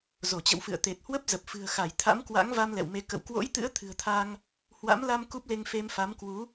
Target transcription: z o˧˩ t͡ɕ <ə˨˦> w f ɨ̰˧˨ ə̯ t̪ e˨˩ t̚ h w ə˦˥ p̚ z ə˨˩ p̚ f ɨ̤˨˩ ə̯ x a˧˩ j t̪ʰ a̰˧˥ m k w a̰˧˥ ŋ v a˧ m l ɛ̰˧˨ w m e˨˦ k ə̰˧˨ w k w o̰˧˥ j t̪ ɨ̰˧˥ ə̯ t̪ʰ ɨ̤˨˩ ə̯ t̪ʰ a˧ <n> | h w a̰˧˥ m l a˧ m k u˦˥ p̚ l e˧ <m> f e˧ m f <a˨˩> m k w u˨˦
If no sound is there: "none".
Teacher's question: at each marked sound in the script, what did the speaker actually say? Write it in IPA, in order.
ə̰˧˨, ŋ, ŋ, a˨˦

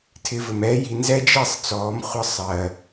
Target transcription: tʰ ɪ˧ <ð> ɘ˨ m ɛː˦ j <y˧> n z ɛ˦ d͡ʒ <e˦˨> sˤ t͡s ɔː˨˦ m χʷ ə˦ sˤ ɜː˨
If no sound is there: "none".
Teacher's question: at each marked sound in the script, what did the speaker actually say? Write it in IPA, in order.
v, i˧, i˦˨

